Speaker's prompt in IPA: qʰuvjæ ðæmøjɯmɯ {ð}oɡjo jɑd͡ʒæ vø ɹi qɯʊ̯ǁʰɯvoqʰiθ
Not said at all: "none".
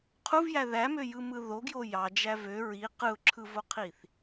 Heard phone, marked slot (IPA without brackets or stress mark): ð